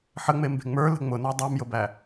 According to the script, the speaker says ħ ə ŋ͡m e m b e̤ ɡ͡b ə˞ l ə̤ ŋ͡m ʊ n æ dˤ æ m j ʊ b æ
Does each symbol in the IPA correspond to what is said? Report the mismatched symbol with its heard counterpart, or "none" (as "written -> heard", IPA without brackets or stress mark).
ɡ͡b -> ŋ͡m